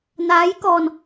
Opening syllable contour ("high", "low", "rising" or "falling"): rising